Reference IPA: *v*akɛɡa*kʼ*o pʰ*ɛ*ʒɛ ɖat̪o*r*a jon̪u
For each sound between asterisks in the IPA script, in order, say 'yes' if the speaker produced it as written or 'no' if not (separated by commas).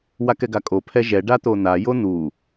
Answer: no, yes, yes, no